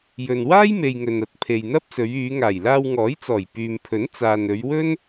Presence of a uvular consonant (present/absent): absent